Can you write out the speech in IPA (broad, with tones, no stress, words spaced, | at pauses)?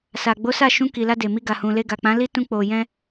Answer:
sa˨ɡ͡bo˨˦sa˦˨ ʃũ˧ki˨la˧ de˨mi˧ ɡa˨hũ˨le˧ɡa˨ k͡pã˨˦li˦tũ˧ k͡po˨jɛ̃˧